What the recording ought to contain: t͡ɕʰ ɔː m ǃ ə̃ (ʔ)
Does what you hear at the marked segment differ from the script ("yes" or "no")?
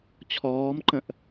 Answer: no